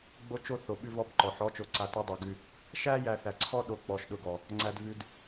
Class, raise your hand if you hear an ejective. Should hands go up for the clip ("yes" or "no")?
no